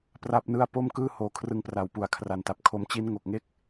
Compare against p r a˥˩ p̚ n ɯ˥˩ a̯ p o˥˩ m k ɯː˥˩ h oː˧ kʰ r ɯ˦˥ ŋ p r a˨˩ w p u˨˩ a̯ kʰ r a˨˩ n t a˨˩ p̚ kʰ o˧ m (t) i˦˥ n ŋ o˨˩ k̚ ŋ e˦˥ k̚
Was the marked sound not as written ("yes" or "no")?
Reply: yes